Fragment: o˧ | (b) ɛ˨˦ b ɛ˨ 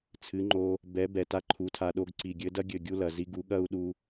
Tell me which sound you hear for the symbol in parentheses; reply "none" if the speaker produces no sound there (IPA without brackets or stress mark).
b